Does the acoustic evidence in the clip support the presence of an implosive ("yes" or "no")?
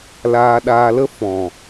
yes